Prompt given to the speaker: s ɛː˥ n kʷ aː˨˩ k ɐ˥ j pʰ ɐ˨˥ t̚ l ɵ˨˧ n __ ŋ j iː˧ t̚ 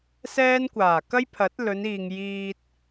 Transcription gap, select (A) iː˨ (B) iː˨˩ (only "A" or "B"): A